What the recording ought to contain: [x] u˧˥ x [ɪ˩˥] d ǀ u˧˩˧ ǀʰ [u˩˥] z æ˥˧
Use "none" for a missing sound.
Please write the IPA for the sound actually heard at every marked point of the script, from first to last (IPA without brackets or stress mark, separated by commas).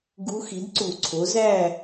ɡ, i˩˥, o˩˥